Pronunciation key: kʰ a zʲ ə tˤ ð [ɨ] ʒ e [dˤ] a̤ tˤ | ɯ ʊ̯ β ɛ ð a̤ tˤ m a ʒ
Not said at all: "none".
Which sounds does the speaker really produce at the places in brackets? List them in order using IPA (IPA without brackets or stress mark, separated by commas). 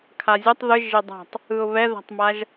ɨ, dˤ